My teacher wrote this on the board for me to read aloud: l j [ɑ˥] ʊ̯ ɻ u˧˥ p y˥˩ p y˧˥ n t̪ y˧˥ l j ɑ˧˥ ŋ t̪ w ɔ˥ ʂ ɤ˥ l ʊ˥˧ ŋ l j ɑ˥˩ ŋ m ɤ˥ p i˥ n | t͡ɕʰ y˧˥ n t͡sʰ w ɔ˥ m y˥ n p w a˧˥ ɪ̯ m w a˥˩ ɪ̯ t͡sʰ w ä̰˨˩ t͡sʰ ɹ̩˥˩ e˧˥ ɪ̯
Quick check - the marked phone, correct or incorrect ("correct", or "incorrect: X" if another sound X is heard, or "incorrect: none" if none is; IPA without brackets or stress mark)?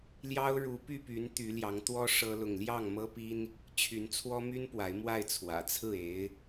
correct